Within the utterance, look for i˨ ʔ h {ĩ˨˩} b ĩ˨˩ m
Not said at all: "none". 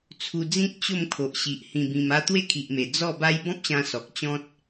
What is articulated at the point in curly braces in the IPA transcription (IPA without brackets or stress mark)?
ĩ˨˩